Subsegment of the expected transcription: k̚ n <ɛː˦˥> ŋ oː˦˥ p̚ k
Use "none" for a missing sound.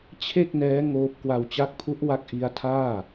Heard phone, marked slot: ɛː˦˥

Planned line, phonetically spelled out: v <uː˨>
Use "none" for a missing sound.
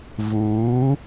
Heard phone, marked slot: uː˨˦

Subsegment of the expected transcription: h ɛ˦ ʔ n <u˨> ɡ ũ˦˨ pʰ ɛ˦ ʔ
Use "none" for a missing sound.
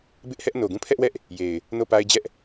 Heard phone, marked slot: o˨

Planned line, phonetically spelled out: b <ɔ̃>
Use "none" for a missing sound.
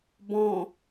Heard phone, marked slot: ɔ̃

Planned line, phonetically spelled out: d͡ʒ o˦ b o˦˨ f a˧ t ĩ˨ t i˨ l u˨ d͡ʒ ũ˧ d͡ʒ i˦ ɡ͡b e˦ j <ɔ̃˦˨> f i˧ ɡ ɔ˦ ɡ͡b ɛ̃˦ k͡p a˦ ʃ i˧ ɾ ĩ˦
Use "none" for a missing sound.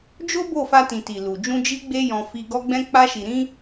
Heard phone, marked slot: ɔ̃˧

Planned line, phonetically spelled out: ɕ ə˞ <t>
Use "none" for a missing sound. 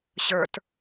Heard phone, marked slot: t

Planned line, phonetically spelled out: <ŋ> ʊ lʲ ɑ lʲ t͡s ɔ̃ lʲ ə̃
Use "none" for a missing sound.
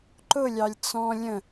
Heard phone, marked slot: ǃ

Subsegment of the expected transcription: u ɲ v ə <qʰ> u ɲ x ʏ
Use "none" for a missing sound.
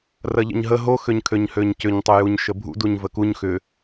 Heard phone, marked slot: k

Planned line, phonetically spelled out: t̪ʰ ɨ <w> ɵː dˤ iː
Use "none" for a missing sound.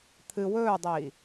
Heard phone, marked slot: w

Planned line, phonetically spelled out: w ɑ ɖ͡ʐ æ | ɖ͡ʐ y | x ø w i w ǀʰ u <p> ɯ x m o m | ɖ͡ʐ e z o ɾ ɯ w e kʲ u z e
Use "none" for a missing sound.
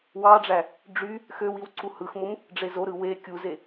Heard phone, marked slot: h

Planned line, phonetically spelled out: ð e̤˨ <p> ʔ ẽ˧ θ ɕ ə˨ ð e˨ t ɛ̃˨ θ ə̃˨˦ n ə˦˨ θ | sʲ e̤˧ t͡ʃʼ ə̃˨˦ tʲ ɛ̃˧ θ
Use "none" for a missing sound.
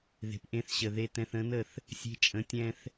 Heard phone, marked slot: p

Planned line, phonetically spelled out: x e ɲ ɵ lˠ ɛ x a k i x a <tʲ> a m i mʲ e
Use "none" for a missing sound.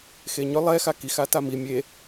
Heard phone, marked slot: t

